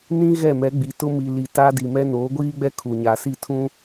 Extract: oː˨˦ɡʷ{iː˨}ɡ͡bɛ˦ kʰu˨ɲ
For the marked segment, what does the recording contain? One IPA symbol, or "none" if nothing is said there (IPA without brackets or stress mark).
iː˦